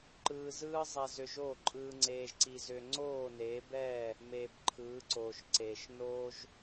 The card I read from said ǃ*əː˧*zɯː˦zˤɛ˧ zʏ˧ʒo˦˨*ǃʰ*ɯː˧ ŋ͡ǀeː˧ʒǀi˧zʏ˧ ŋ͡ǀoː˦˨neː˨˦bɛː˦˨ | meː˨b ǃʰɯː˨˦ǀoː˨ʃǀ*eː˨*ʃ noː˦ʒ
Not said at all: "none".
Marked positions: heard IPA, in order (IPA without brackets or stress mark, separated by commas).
ɯː˧, ǃʼ, eː˨